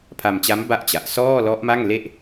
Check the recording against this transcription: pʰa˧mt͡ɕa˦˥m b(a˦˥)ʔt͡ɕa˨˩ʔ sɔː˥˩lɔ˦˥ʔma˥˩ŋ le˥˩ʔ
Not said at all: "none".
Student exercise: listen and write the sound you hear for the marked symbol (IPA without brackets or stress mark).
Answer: a˥˩